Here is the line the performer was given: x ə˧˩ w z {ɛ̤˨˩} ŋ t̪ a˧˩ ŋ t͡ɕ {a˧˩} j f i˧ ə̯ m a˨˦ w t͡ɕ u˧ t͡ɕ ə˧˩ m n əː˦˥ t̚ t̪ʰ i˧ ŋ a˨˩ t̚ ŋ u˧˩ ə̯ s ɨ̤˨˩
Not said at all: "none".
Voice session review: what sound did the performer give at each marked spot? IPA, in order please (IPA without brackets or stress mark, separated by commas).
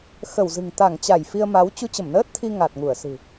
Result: ɨ̤˨˩, a˧˩